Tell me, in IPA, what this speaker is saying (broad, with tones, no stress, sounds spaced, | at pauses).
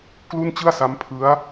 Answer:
k l u˥˩ n t͡ɕ ɯ˥˩ a̯ s a˦˥ m pʰ ɯ˦˥ a̯